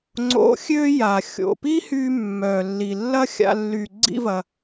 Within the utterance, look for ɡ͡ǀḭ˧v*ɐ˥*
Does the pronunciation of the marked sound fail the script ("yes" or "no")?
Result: yes